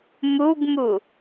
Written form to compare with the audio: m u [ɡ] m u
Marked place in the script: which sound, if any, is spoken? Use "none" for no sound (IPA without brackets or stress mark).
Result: ɡ